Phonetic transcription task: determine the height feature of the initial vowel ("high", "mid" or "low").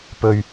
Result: mid